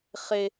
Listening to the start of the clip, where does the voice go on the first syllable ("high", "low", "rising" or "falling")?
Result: high